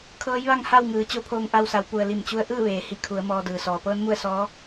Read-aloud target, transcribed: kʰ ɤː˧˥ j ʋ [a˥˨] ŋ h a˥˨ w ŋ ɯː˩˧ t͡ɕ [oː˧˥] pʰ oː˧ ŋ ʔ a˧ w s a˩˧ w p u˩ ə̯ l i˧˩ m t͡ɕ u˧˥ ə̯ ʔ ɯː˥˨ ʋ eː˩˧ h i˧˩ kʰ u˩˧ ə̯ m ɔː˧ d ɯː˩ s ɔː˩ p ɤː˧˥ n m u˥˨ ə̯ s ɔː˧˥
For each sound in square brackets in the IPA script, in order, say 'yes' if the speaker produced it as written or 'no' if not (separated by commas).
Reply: yes, no